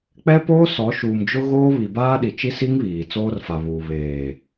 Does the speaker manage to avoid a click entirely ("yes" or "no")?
yes